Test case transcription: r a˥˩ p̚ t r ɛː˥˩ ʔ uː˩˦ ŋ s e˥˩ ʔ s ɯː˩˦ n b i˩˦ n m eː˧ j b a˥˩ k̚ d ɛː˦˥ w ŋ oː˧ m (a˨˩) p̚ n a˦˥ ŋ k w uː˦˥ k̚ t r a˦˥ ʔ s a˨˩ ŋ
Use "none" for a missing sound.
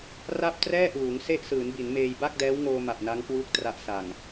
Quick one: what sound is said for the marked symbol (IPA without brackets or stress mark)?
a˨˩